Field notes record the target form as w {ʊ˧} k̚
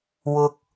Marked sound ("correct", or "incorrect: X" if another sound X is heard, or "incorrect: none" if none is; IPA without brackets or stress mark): correct